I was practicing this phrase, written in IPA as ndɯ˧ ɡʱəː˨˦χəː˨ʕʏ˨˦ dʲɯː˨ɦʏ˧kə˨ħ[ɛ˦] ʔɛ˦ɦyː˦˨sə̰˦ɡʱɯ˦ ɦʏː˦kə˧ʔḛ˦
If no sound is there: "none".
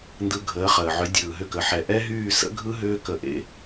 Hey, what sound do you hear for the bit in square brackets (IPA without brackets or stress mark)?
ɛ˨